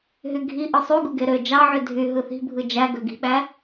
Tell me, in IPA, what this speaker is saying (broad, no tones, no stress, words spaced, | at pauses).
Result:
ɦyɡʱi ʔɯsˤy ɡuɡeɾø d͡ʒɑʕy dʱy ɦɯθi̤bʱɯ d͡ʒæɡø ɡi̤ɓæ